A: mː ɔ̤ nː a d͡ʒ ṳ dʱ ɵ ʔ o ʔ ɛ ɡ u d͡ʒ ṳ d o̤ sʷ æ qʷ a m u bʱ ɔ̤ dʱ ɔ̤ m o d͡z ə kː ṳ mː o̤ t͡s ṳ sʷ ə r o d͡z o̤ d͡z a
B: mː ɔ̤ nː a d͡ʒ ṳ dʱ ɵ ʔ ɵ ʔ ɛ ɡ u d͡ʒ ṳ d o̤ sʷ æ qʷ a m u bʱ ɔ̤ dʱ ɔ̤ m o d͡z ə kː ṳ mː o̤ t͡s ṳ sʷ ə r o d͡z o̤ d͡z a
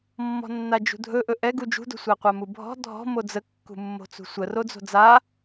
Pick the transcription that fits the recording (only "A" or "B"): B